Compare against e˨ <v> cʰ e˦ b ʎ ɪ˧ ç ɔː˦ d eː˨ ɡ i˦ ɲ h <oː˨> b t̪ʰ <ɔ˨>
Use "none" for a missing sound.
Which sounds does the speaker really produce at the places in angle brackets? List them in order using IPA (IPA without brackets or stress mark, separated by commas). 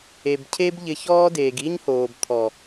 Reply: b, oː˨, ɔ˨